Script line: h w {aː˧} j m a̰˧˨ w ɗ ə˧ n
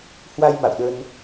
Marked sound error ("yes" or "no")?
yes